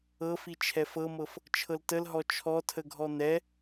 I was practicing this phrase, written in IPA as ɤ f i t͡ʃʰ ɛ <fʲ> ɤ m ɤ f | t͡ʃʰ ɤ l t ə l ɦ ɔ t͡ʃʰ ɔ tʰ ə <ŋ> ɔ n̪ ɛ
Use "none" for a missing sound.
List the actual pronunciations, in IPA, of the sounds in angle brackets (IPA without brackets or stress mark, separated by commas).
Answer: f, ɡʱ